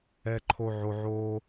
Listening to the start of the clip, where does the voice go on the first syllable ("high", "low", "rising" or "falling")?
low